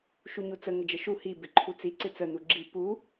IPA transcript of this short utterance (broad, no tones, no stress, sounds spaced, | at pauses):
ʃ u ɲ u t͡s ə ŋ ə d͡ʒ ə ʃ u h i b ɪ ǃʰ u t͡s i ǀ ɪ t͡s ə n u ɡ͡ǁ i p u